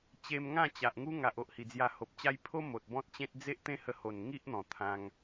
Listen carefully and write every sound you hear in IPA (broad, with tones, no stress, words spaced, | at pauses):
t͡ɕe˧m ŋã˥˧t͡ɕa˨ʔ ŋu˦ŋa˨ʔo˨ʔ hi˨˩d͡zja˧ho˨p̚t͡ɕa˦j pʰo˦ mo˨t̚ bɔ̃˦t̚t͡ɕẽ˦t̚ d͡ze˦ʔ t̪ẽ˦hə˧ho˨˩nŋi˦ʔ n̪ɔ̃˨˩t̪ʰã˧ŋ